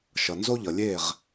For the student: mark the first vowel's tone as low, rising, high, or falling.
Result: low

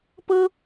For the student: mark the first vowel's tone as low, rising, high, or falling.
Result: high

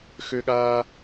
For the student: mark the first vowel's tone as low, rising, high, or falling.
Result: high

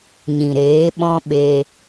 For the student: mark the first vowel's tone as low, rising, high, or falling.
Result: low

